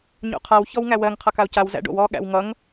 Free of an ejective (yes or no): yes